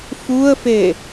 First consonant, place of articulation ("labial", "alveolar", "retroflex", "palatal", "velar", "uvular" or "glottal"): labial